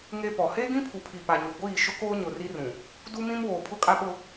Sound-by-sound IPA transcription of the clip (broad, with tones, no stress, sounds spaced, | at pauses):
ŋ e˦ p ɔ˨ h eː˦ ɡ ĩ˦ pʰ u˨ pʰ i˨ p a˨ ɲ u˨ ɡʷ iː˦˨ ʃ ʊ˦ k oː˦ ɲ ʊ˨ r i˦ r ũ˨ | d u˦ m ĩ˦ m w oː˨ pʰ ʊ˦ kʼ a˦ ɓ ʊ˦